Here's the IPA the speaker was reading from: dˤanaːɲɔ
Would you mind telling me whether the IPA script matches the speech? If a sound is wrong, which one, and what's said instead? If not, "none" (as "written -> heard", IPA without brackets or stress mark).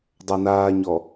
none